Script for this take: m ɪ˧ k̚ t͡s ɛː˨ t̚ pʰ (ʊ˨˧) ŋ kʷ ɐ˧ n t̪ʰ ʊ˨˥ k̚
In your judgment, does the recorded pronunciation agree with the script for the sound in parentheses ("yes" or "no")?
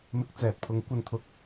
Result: yes